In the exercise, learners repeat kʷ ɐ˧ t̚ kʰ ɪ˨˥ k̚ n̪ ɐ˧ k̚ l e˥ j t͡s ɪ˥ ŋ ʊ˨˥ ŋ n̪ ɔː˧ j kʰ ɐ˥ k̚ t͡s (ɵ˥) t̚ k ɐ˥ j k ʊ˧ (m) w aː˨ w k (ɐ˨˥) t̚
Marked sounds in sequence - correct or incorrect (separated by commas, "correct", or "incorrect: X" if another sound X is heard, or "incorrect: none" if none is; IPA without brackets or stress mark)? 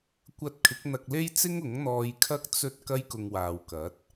correct, incorrect: ŋ, correct